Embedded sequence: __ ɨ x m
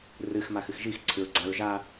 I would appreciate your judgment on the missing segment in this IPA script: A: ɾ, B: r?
B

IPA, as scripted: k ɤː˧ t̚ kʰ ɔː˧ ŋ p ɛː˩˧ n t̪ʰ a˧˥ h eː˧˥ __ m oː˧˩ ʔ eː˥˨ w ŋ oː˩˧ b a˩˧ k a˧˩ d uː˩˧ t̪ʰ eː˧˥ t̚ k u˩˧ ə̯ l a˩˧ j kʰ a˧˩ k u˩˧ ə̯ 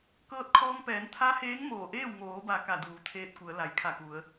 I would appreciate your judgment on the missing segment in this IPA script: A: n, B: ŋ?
B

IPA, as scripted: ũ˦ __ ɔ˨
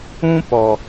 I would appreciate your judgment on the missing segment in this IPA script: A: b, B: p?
B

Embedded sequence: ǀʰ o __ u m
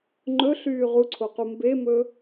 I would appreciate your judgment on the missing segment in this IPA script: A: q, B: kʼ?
A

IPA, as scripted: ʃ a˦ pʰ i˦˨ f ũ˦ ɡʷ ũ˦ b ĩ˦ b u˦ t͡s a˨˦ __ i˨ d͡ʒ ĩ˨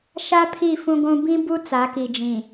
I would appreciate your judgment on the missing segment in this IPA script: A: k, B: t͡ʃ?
A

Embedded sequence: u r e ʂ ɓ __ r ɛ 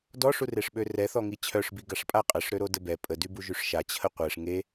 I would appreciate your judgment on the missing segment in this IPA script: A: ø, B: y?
A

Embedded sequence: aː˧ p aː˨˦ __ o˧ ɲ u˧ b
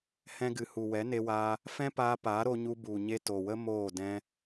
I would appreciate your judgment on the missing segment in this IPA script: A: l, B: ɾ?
B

